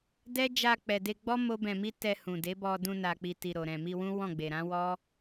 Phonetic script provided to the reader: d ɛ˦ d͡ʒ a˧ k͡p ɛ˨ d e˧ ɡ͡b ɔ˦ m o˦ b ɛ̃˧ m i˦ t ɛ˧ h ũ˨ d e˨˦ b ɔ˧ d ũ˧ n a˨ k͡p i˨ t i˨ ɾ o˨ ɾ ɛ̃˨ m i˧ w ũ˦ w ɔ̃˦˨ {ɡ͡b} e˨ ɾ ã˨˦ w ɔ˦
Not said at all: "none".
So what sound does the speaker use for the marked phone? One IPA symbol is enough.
ɡ͡b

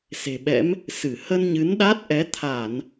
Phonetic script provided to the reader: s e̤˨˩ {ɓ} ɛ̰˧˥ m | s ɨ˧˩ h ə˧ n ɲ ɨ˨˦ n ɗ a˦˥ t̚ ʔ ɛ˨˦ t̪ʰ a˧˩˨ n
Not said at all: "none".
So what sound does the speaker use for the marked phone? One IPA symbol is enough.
ɓ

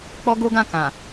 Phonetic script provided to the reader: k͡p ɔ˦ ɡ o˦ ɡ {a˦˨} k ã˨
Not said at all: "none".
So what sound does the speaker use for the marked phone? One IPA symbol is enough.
ã˦˨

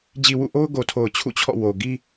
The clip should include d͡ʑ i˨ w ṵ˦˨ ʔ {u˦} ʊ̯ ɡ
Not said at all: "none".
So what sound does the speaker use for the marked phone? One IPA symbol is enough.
o˦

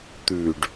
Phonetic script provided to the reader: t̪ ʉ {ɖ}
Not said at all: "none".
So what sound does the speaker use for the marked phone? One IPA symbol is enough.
ɖ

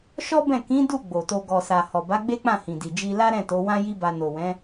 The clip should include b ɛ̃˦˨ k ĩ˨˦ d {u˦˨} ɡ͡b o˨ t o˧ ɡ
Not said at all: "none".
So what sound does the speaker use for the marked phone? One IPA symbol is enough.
u˦˨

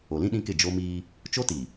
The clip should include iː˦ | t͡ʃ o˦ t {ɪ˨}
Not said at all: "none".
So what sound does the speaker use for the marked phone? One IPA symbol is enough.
i˨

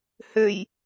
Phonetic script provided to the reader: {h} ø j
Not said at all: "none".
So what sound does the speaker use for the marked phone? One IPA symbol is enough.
h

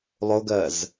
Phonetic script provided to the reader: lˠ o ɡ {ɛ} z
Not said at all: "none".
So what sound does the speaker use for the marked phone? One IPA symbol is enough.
ɜ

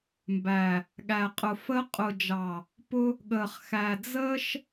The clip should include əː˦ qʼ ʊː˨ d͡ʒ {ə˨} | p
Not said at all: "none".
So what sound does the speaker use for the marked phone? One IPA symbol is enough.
ɑ˨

